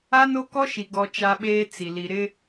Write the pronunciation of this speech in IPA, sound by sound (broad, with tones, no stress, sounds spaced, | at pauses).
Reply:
a˦ n o˦ k ɔ˦ ʃ i˨ ɡ ɔ˨ t͡ʃ a˦ ɓ eː˦ t͡s i˨ l i˨ ɾ ɪ˦